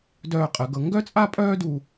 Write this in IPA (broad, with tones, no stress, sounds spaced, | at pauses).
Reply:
d œː˧˩ qʼ ə˩˧ ɡ ɤ˩˧ ŋ ɡ œ˥ t͡sʼ a˥ pʼ œː˥ d u˧